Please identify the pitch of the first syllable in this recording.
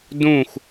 falling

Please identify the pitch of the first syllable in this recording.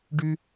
high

